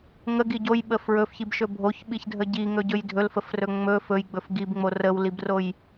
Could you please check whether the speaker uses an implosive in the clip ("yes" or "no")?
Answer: yes